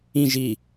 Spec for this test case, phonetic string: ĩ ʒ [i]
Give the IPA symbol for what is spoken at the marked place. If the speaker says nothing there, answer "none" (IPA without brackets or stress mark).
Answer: i